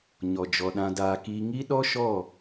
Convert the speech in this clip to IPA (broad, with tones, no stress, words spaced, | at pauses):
ɲɔ˨d͡ʒɔ˨ɗã˧ daː˧kiː˦ ŋi˦ɗɔ˦ʃɔ˦˨